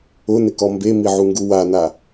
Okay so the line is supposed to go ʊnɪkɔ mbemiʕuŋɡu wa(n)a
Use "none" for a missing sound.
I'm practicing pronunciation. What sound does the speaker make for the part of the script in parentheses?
n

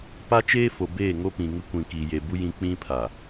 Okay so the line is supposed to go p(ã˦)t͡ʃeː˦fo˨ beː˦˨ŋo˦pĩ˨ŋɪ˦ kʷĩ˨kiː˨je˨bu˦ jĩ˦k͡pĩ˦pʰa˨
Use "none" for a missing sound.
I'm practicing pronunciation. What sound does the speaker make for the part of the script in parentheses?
a˦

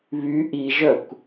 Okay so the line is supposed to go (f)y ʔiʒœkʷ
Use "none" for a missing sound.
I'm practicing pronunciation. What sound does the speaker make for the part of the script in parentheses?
β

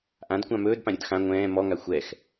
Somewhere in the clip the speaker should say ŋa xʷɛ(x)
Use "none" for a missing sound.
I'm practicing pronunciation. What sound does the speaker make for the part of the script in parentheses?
x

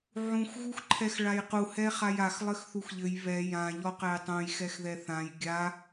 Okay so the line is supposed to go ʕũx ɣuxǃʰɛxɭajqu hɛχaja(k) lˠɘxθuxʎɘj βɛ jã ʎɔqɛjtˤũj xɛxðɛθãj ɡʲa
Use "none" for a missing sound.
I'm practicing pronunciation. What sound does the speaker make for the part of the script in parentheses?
x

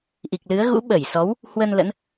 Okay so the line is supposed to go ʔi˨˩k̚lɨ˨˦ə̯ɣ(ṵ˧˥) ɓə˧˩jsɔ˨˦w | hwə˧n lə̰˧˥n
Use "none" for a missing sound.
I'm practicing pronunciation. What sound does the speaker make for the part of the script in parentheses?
ṵ˧˥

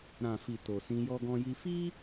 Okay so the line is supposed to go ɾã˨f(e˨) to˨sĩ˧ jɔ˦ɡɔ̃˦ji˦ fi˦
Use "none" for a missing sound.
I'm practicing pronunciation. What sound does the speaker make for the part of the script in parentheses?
i˨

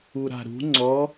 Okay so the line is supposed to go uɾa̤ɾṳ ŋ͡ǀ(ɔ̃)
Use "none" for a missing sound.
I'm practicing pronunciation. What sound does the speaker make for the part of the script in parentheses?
ɔ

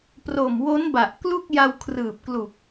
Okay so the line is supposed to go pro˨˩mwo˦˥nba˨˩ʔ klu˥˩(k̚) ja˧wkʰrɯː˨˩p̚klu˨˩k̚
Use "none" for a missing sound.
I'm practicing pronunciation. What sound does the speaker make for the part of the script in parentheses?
k̚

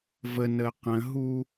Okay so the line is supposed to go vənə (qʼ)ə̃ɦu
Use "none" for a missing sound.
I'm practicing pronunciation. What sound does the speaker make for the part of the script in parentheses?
q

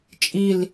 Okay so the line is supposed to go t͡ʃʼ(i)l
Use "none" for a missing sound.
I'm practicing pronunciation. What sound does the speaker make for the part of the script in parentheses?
i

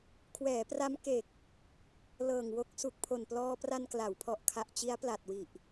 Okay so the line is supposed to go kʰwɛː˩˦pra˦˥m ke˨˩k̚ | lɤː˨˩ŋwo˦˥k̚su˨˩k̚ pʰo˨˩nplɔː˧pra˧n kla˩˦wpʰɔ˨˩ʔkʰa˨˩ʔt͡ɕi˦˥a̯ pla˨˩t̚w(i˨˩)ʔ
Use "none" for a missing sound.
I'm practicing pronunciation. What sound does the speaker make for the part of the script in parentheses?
i˨˩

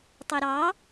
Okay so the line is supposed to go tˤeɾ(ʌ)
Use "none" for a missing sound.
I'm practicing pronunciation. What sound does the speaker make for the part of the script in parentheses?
ɑ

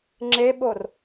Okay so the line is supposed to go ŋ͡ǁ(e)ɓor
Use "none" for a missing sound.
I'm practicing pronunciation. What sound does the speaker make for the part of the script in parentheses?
e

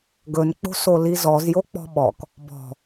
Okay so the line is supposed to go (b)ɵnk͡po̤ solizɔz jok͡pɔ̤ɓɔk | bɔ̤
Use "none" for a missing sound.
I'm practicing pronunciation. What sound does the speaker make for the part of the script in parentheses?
ɡ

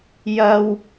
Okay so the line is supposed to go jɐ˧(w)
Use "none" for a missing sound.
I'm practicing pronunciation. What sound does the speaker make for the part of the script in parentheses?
w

